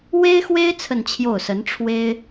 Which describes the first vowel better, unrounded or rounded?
unrounded